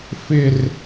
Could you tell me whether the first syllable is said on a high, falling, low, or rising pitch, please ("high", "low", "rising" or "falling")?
high